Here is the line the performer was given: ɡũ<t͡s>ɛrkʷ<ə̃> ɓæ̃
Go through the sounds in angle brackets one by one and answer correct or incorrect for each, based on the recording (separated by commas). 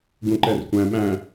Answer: incorrect, incorrect